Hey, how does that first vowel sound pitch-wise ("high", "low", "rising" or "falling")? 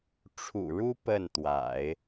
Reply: low